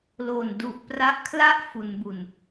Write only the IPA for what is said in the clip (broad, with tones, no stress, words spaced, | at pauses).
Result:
lo˨˩n du˨˩ʔ pra˦˥ʔkʰla˥˩ʔ fu˩˦nbu˨˩n